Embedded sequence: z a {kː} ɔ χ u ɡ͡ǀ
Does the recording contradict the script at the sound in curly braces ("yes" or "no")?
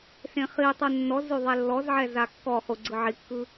no